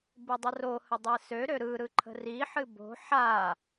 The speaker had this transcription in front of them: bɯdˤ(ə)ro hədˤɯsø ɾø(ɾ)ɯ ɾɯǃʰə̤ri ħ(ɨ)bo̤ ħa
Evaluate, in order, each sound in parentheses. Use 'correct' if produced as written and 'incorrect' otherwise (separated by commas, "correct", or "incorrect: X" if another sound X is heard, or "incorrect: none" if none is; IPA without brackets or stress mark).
correct, correct, correct